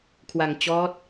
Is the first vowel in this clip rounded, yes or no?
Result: no